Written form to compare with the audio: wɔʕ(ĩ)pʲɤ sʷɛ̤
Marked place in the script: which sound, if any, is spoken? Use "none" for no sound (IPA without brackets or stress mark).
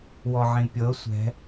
ĩ